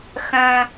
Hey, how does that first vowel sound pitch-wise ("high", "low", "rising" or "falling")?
high